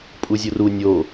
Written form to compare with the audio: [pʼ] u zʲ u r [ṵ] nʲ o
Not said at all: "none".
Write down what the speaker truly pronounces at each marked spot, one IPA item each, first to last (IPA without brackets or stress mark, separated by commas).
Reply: pʼ, u